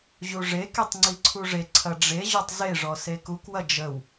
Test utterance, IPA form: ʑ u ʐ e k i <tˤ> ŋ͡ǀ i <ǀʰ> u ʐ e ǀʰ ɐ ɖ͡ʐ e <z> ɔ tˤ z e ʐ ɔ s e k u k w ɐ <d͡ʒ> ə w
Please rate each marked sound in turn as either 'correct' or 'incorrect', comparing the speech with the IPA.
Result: correct, correct, incorrect: ʑ, correct

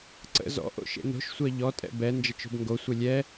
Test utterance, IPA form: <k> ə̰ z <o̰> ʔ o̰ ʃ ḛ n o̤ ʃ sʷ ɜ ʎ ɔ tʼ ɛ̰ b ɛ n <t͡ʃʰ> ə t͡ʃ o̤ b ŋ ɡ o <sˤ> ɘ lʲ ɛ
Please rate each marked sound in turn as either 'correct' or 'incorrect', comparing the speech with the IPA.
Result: incorrect: ǀ, incorrect: ɔ̰, incorrect: d͡ʒ, incorrect: sʷ

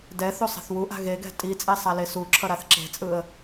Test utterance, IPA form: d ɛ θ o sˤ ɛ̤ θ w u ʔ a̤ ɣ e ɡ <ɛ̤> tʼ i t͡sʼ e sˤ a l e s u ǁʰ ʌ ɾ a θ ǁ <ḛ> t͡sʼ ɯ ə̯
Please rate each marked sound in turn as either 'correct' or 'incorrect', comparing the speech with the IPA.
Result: correct, incorrect: e̤

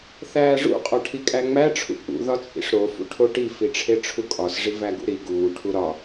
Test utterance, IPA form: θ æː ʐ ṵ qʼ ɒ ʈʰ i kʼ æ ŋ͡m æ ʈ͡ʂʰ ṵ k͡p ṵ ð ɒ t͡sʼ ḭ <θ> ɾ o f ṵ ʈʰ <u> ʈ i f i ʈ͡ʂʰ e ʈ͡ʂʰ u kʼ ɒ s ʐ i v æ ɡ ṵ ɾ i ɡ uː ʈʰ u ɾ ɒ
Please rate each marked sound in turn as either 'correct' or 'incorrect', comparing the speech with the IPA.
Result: incorrect: ʂ, incorrect: o

